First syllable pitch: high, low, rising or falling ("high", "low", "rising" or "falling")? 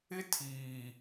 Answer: high